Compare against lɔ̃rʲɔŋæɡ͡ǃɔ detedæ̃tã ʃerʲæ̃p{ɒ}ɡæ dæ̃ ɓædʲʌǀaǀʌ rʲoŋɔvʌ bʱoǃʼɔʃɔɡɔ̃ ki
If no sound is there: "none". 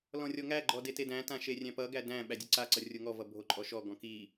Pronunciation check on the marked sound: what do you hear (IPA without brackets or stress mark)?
ʌ